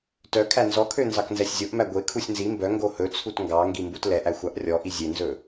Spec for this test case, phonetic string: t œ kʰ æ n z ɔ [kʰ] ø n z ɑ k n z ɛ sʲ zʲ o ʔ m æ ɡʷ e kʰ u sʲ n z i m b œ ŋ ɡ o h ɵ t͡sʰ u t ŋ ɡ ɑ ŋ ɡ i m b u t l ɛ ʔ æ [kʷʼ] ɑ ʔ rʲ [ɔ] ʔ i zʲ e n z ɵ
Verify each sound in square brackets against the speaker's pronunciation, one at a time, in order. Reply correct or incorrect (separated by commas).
correct, incorrect, correct